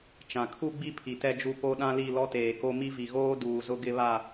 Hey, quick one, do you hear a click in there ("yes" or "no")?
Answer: no